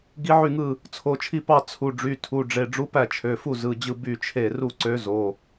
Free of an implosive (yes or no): yes